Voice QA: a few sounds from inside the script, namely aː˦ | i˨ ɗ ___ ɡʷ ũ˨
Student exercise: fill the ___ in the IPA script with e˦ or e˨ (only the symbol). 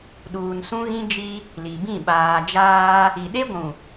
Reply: e˦